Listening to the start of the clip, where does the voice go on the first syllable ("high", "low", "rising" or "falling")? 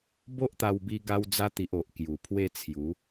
high